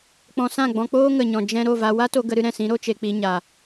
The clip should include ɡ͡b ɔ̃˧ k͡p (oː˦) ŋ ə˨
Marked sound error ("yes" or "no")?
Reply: no